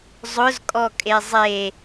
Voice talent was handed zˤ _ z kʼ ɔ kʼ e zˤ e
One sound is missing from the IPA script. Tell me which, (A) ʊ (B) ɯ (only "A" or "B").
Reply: A